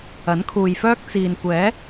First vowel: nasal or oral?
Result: oral